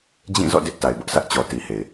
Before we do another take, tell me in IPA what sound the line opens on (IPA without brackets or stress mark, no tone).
d͡ʑ